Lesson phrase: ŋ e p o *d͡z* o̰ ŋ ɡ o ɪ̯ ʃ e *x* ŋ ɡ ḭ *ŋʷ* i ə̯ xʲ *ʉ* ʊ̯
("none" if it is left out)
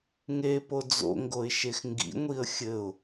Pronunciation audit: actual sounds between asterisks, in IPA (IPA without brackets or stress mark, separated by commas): d͡z, x, ŋʷ, ɘ